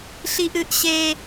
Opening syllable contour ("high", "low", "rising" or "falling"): high